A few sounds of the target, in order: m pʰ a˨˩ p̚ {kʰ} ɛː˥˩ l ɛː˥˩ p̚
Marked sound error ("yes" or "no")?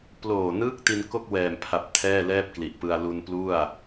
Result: yes